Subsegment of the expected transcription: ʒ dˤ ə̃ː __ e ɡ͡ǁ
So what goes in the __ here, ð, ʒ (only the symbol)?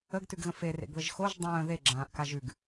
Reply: ð